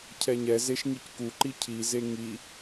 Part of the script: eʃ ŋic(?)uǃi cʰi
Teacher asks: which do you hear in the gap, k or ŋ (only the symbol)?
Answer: k